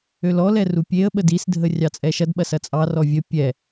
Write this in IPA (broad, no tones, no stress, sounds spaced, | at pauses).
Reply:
ø l ɔ l ɛ r u pʲ e ə̯ ɓ ə d i s dʱ ə rʲ ɑ t͡sʼ ɛ ʃ ɐ d ɓ ɐ s ɐ t͡sʼ ɑ r ɔ vʲ ə pʲ ɛ